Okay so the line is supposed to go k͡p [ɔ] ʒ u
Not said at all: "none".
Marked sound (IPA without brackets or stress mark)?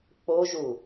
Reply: o